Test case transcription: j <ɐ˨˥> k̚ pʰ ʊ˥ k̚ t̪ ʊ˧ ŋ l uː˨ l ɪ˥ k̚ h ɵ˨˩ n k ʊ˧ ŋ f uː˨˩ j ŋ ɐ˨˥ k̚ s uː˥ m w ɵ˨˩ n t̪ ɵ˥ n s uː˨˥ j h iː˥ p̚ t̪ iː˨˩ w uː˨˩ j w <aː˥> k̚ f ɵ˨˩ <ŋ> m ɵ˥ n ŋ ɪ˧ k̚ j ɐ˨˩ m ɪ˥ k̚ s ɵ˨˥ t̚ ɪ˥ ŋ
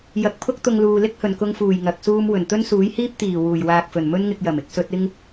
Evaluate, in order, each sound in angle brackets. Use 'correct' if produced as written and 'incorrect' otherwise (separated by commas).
correct, incorrect, incorrect